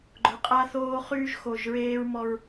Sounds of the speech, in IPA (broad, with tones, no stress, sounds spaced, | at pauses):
ɡ͡ǃ ʊ˨ qʼ a˦ θ oː˦ χ yː˦ ʒ x o˨ ʒ ɹ eː˦ ɹ m ɔ˦ ɹ